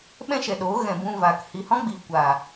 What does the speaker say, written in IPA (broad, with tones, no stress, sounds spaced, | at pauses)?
ɓ ɛ̃˦ ʃ ɛ˨ ɗ oː˨˦ ɣ ɛ̃˨ b ũ˧ v aː˨ k h i˨ h ɔ̃˦ ɡ͡b iː˨ kʷ a˨